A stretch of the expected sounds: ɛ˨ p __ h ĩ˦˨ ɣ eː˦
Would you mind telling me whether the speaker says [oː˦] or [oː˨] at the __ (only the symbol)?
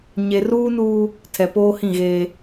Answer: oː˦